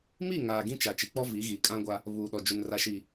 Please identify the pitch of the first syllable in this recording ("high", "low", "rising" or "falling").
falling